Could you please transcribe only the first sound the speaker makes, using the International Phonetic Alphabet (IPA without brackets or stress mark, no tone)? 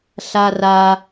ɬ